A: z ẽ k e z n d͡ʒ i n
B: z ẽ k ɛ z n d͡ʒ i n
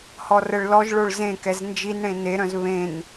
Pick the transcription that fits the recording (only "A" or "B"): B